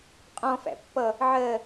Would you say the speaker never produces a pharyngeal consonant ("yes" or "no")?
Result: no